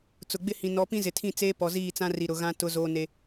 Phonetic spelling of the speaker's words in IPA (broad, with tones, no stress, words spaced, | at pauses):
t͡sʊ˨ɡ͡bɪ˦hĩ˨ nɔ˨˦pĩ˦ zɪ˨tʰĩ˦˨t͡seː˦ pɔ˨ziː˦˨t͡sã˦ri˨ ɾʊ˨ɣã˦ tʊ˦zoː˦ne˦